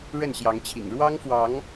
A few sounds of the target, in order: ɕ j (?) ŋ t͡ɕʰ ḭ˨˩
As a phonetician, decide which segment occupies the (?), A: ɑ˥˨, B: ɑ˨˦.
B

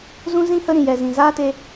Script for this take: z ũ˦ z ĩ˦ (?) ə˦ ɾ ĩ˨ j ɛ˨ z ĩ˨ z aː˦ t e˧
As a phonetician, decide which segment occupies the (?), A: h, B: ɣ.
A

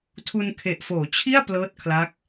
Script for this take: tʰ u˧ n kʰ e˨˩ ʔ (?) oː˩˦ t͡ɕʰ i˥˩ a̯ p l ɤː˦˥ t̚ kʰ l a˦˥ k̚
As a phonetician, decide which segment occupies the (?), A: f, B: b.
A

